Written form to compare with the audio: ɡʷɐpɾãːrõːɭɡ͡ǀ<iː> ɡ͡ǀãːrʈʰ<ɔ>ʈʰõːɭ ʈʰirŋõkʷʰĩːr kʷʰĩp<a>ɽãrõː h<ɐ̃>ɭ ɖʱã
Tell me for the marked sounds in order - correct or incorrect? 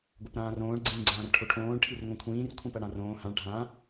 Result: incorrect, incorrect, incorrect, incorrect

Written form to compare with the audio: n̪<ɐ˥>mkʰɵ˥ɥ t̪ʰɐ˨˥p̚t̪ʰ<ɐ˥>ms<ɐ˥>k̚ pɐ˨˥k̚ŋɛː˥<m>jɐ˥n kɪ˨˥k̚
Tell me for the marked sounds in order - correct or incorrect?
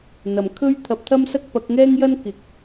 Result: incorrect, correct, correct, incorrect

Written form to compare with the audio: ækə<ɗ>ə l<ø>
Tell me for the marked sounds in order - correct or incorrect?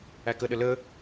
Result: correct, incorrect

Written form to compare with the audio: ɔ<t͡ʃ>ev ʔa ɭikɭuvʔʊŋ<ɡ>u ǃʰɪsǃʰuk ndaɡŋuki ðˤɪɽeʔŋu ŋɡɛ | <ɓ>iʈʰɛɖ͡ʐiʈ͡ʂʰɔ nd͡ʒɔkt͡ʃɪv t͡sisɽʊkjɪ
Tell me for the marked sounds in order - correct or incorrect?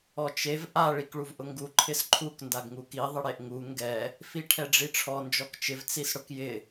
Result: correct, correct, incorrect

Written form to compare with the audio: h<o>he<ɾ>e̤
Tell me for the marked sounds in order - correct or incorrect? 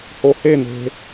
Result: correct, incorrect

